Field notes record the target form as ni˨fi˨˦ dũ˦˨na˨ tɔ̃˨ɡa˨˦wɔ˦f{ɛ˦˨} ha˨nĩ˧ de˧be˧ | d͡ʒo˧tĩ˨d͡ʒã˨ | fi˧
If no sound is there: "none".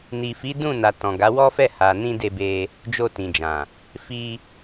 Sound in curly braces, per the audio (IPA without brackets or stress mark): ɛ˦˨